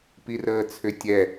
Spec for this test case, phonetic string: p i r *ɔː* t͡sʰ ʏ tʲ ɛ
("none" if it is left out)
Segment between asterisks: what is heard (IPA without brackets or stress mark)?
əː